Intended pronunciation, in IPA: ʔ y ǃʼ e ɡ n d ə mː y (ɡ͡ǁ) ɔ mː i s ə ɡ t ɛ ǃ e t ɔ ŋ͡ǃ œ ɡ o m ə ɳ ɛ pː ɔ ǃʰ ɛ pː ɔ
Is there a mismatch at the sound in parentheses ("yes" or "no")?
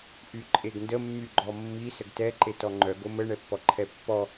yes